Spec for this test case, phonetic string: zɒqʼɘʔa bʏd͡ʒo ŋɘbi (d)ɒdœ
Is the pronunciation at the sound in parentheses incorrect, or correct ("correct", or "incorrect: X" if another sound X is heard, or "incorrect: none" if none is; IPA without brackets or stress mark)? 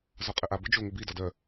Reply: correct